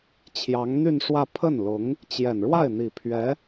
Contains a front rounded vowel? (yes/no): yes